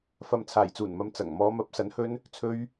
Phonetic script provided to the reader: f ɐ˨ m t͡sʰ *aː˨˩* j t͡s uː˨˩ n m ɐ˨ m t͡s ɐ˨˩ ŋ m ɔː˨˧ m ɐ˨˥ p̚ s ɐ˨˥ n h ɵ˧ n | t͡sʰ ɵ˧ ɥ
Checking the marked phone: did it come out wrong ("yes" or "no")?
no